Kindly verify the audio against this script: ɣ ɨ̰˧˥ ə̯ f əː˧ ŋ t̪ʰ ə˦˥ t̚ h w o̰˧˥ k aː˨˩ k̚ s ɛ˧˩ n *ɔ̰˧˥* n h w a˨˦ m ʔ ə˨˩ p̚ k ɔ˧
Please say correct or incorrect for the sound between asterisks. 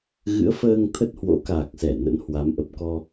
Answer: incorrect